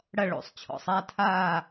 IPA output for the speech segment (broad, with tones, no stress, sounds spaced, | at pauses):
ɽ ɐ˥˨ ɭ o̰˨˩˦ sˤ t͡ɕʰ ɔ̰˨˩˦ sˤ a˥˨ tʰ aː˥˨